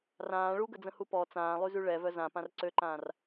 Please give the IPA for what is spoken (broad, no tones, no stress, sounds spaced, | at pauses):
r ãː ɭ u ɡ ə d͡z ə̃ h u p ɔ t͡s ãː lˠ y z y ɭ ɛ v œ z ã p ã r ǀ ø ǃ ãː r